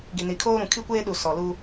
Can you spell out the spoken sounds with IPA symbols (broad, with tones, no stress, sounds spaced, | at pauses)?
ɡ i˨ n i˨ kʰ oː˦ ɾ ũ˨ kʰ i˦ kʷ eː˦ ɗ u˨ s ɔ˨ l u˦